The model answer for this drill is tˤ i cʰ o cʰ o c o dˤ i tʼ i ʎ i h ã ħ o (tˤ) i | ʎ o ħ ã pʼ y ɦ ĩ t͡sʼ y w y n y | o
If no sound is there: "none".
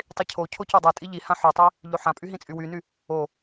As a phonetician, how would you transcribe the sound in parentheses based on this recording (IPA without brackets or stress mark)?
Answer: tˤ